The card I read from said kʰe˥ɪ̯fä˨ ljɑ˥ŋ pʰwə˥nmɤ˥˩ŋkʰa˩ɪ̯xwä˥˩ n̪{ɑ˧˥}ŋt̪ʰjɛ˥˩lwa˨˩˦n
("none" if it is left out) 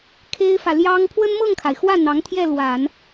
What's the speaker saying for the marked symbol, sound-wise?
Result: ɑ˧˥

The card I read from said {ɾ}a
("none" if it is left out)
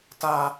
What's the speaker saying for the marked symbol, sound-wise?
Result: t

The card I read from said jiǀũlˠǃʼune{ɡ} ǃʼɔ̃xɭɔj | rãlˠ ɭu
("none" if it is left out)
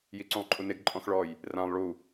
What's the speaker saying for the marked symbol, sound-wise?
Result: ɡ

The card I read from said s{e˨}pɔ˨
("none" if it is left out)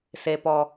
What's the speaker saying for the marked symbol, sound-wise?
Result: e˨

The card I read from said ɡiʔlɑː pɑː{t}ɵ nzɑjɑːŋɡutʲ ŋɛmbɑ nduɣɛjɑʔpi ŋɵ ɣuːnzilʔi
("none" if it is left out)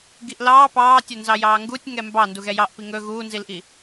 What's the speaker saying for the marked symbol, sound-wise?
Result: tʲ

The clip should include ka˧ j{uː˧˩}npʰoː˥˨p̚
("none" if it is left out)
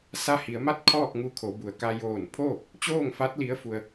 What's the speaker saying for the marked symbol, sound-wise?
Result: oː˧˩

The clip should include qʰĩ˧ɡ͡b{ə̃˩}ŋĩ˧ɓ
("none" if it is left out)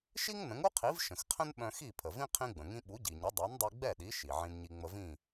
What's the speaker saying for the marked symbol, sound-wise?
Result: ə̃˩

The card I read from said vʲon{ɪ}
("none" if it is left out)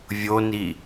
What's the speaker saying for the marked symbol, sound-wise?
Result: i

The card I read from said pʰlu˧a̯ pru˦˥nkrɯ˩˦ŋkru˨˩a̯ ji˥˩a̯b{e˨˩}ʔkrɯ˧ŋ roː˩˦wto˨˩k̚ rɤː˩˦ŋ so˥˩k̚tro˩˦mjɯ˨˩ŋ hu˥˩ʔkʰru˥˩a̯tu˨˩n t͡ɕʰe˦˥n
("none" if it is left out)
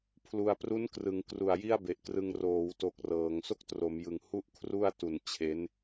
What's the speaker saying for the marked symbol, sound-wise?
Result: e˨˩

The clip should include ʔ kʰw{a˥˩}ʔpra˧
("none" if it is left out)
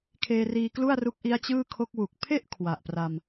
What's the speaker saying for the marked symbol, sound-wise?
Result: a˨˩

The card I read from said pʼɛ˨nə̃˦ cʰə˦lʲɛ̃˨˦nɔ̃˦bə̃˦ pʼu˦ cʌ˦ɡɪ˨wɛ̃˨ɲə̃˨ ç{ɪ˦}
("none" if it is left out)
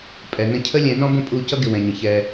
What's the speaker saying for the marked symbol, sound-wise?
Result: ɛ˦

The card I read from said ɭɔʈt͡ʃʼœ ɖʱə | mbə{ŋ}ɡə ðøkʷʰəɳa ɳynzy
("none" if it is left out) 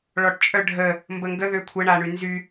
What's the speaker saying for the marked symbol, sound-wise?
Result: ŋ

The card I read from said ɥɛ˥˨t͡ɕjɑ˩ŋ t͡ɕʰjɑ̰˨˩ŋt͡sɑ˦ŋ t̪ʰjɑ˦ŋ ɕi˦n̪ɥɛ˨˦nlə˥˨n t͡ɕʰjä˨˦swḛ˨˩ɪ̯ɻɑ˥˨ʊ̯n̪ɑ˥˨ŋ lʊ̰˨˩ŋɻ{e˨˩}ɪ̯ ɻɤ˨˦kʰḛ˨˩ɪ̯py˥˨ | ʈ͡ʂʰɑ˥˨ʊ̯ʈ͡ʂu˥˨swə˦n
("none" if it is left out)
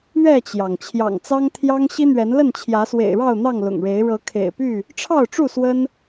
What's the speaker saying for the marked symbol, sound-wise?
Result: e˨˦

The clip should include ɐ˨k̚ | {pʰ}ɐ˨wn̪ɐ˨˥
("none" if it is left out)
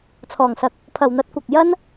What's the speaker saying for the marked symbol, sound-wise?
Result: pʰ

